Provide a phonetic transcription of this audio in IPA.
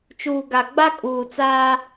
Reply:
t͡ʃ uː˨ ɡ a˨ ɡ͡b a˦ kʼ uː˨ t͡s aː˦

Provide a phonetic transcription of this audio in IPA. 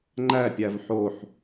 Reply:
ŋ͡ǃ æ pʲ æ v ħ o ħ

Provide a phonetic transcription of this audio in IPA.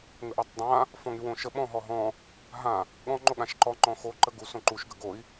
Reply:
ŋ ə ʔ ɔ tˤ dˤ ã | f ɔ̃ ŋ y w õ ʃ ə ɓ ɔ̃ ɦ ɔ ɦ ɔ̃ | ɦ ã | ɠ ɔ̃ ŋ͡ǃ o ɠ ã ʃ ǃ ɔ ŋ͡ǃ ɔ̃ x o ǃ ə ɡ u s õ ǃ u ʃ ɡ ə ɡ o i̯

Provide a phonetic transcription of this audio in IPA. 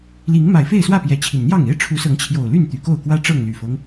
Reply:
l i˨˦ ŋ m a˨˩ ɪ̯ f e˥˨ ɪ̯ s w ä˥˨ p j ɛ˨˦ t͡ɕʰ i˨˩ n n̪ j ɑ˥˨ ŋ e˦ ɪ̯ ʈ͡ʂʰ u˨˦ s ɤ˨˦ ŋ t͡ɕʰ j o˨˩ ʊ̯ l y˥˨ n t̪ y˨˩ k o˥˨ ʊ̯ k w ä˦ ʈ͡ʂ ɤ˥˨ ŋ l y˨˩ f ɤ˦ ŋ

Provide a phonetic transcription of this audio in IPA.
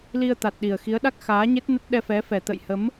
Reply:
l i˧ ə̯ t̪ a˨˩ t̚ ɗ i˨˩ ə̯ x i˨˦ ə̯ ɗ a˦˥ k̚ x aː˨˦ ɲ e˦˥ t̚ n ə˦˥ t̚ ɗ ɛ˧ f ɛ˨˦ f ɛ˨˩ t̪ ə̰˧˨ j h ə˨˦ m

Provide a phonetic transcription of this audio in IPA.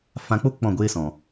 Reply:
f ã˧ k͡p o˦ k͡p ɔ̃˦˨ ɡʷ eː˦ s ɔ̃˨

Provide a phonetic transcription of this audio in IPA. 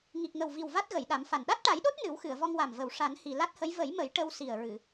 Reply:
ŋ i˨˩ k̚ ŋ ə˨˩ w v i˨˩ w v a˦˥ t̚ ɣ ə˨˩˨ j ɗ a˨˩˦ m f a˨˩ n ɗ a˦˥ t̚ ʈ a˨˩˦ j ɗ o˦˥ t̚ n ɨ˨˩˦ w x ɨ˨˩˨ ə̯ v ɔ˧ ŋ w a˨˩ m v ə˨˩ w ʂ a˨˩˦ n h i˨˩ l a˦˥ t̚ h ə˧˥ j v ə˨˩˦ j m ə˨˩˦ j ʈ ə˧ w s i˨˩ ə̯ ɹ ɨ˨˩˨

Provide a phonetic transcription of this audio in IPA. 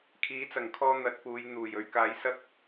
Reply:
kʰ iː˨˥ t͡s ɐ˨˩ ŋ kʰ ɔː˧ n̪ ɐ˨˥ t̚ p uː˨˧ j n̪ uː˨˩ j ɵ˧ ɥ k aː˨˥ j s ɐ˥ k̚

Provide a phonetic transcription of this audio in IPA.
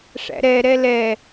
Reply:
ʂ æ̰ ɾ ɛ ɾ ɛ l ɛ

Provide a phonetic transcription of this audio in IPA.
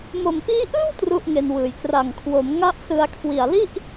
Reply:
m o˨˩ m p iː˦˥ ʔ ɯː˥˩ w t r u˥˩ ʔ ŋ e˧ n w ɯː˨˩ j k r a˨˩ ŋ kʰ w o˩˦ m ŋ a˥˩ ʔ s ɯ˧ a̯ kʰ w i˨˩ a̯ l i˥˩ ʔ

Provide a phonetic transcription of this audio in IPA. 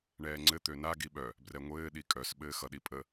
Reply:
ɳ ɛː ŋ͡ǀ ɘ t̪ ø n a ɡ i ɓ œ | b r ɛ ŋʷ ɘː ɗ i kʼ œ s ɓ ɘː x ʌ ɗ i pʼ ə

